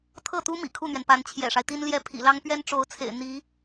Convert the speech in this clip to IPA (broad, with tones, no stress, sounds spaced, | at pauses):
t̪ʰ ɤ˥˩ t̪ u˥ m ḭ˨˩ kʰ u˥˩ n̪ ɥ ɛ˩ n p a˧˥ n t͡ɕʰ j ɛ̰˨˩ ʂ a˦ ɪ̯ t̪ i˥ n l j ɛ˥ pʰ ḭ˨˩ l ɑ˥ ŋ p ɥ ɛ˥ n ʈ͡ʂ o˧˥ ʊ̯ t͡sʰ ḛ˨˩ ɪ̯ n̪ i˧˥